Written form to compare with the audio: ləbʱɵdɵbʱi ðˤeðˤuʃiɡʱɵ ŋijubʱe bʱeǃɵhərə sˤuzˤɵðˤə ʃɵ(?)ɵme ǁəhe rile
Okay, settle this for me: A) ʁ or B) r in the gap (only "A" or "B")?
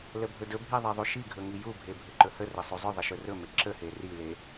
B